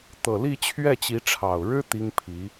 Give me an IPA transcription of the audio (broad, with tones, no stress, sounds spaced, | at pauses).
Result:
t̪ ɤ˨˩ l i˥˧ t͡ɕʰ ɥ ɛ˥˩ t͡ɕ i˧˥ ʈ͡ʂʰ ɑ˨˩ ʊ̯ ɻ ɻ̩˥ t̪ i˥ ŋ pʰ i˧˥